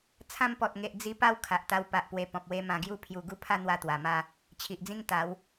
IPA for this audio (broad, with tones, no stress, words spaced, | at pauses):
t͡sʰã˧mpɔ˨t̚ŋe˨ʔ d͡zi˧ pa˦w kʰa˨ʔt̪a˧w pa˨ʔpwe˨˩ pɔ̃˨p̚we˧ mã˨˩ɡju˧pʰju˨˩ ɡu˦pʰa˥˧n̪wa˧ t̪wa˨˩ma˥˧ | t͡ɕʰi˨ʔd͡zĩ˦ŋ t̪a˨˦w